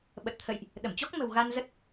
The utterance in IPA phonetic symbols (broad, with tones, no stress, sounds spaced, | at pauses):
ɓ ə˨˩ t̚ t̪ʰ ə̰˧˨ j ʔ | ɗ ə˧˩ m t͡ɕ ɔ˦˥ k̚ m ə̤˨˩ w ɣ a˧ n z ə˦˥ t̚